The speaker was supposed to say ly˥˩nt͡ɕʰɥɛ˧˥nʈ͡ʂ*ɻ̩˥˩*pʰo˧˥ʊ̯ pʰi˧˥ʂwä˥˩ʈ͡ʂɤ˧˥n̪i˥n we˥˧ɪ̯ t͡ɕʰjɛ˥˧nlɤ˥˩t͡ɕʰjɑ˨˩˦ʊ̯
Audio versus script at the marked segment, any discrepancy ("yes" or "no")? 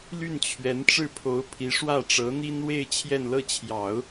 no